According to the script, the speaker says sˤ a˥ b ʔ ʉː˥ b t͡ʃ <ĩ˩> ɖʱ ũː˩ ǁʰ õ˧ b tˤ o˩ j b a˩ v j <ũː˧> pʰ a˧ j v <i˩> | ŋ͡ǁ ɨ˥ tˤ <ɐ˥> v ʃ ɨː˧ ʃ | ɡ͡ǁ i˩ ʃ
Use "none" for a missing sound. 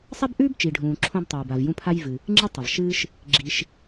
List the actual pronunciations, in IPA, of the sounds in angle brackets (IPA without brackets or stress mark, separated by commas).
i˩, ũ˧, ɨ˩, ɐ˩